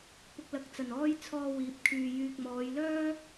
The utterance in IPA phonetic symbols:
p ʊ˨ k̚ l ɐ˨˥ k̚ t͡s ɐ˨˩ n ɔː˥ j t͡sʰ ɔː˧ w iː˨˥ p̚ kʰ yː˨ j yː˨ k̚ m ɔː˨˧ j l œː˥

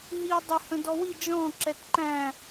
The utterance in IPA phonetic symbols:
ɦ i ʊ̯ dˤ ɪ h ə̃ d ɔ w i d͡ʒ ɔ̃ ǁ ɛ t ǃ æ̃

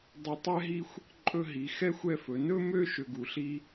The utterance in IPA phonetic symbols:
dˤ ɵ˧ tˤ ɛ˥ ɦ i˥˧ xʷ | ǃʼ ɵ˥˧ ɦ i˩˧ x ɛ˥ xʷ ɛ˥˧ f ɵ˩˧ n ɵ˥ m ø˥ ʃ ø˧ ɡ u˩˧ ɬ i˥

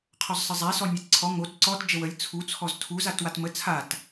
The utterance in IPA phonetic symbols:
qʰ ɔ z sˤ ə zˤ æ s ɔ nʲ æ t ǀʰ ɔ ŋ o t ǀ ɔ t d͡ʒ ə w ə lʲ t͡sʰ u t͡sʰ ɔ z tʰ u z a t w a t m ə t͡sʰ a t

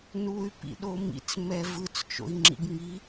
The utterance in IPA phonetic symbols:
n u y̯ p ḭ ɗ o m ḭ t͡s m ɛ v ɯ t͡s t͡ʃ o̰ i̯ ŋ͡ǁ ḭ ɡ ŋ i

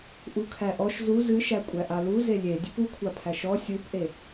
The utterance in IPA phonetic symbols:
ʔ u kʰ æ ʔ ɔ ʃ z u z ɨ ʃ æ kʷʼ æ ʔ a l u z e lʲ e dʲ ɨ p u kʷʰ a pʰ æ ʃ ɔ sʲ u p ʔ e

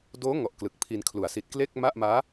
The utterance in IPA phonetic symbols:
d oː˦˥ ŋ ɔ˨˩ ʔ k l ɯ˨˩ k̚ pʰ i˧ n kʰ l u˩˦ a̯ s i˨˩ t̚ k l e˥˩ k̚ m a˥˩ ʔ m aː˦˥

